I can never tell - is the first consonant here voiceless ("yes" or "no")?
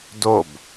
no